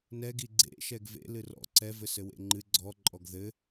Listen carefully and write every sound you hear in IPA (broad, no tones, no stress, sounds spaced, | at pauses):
n ɛ ɡ i ɡ͡ǀ ḛ ʃ ɛ ɡ v ḛ l ɨ r ɔ̰ ǀ ɛ v ɘ s ɘ w ḛ ŋ͡ǃ ɨ ɡ͡ǀ ɔ ǃʼ ɔ ɡ ð ɘ